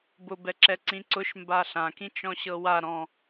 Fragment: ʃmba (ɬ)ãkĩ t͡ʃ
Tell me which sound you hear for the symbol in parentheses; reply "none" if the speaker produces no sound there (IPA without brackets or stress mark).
ɬ